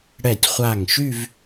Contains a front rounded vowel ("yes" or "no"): yes